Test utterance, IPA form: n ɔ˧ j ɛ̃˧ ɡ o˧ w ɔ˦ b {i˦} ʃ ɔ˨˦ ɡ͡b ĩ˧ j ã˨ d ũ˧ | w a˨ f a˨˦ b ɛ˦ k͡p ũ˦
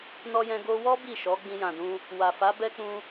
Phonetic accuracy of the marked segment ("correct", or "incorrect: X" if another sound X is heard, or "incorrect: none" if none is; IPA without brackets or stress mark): incorrect: i˦˨